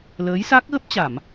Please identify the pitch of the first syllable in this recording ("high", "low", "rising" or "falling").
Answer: rising